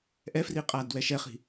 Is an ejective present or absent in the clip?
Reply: present